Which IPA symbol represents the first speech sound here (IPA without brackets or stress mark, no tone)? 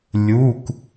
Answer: lʲ